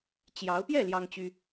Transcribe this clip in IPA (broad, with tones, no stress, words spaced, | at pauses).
t͡ɕjɑ˧˥ʊ̯ pjɛ˥˩ ljɑ˥ŋt͡ɕy˥